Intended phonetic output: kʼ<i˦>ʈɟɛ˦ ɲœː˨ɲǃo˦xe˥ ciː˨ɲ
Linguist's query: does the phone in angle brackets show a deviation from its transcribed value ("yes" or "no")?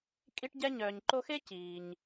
no